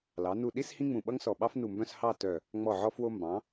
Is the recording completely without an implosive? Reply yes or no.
no